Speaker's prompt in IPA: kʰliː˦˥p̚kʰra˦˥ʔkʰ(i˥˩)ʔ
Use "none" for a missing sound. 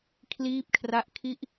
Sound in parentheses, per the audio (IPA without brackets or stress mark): i˥˩